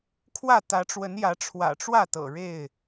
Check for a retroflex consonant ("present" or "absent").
present